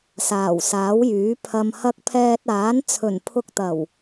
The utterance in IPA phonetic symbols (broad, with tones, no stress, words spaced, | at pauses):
saː˨˩wsaː˨˥wjyː˨˥ pʰɐ˨mhɐ˧k̚ pʰɛː˧t̚aː˨˥n t͡sʰɵ˨˩npʰʊ˧k̚t̪ɐ˨˩w